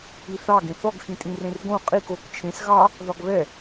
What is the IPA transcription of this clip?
i θ ɑ ɡ ẽ θ ɔ ɡ x ĩ tʼ ĩ r ẽ r ɡ õ qʼ i k o k t͡ʃʰ ẽ s ɣ ɑ | ð ɒ ɡ β ɛ

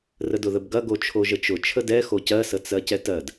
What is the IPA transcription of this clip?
r ə d ʊ ð ə b ɡ ɐ ɡ o t͡ʃʰ o ʒ ə t͡ʃ ʊ t͡ʃʰ ə d ɛ x o c ɜ s ə t͡s ɜ c ɛ t ɜ d

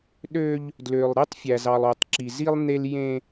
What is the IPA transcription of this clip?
ɗ ø˦ ʎ | d l ø˨ lˠ ɾ e˦ tˤ fʲ æ˨ z ɑ˨ lˠ o˨ tˤ ǁ i˨ z i˦ lˠ n̪ e˦ l j ẽ˦

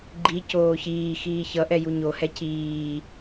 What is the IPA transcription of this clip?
ɡ͡ǃ i c oː ç iː x iː ç ʌ ʔ ɛ j u ɲ o h ɛ c iː

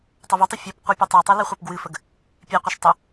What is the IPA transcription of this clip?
tˤ ə v u tˤ e fʲ ɛ p qʷ i pʲ ɛ tˤ o tˤ i l ɨ χʷ ɛ p ɡ w ɨ f ə ɡ | pʲ e qʷ e ʃ tˤ ə

